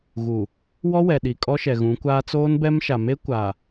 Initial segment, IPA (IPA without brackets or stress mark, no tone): ɣ